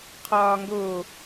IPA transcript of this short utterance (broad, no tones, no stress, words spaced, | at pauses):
qʰɒːŋɡo